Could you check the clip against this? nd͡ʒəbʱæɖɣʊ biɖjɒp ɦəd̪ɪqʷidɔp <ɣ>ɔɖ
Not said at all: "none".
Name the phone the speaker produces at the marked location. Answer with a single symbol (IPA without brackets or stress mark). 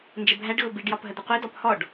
h